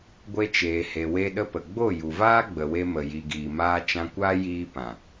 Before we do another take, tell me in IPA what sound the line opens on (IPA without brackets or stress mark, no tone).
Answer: ɡʷ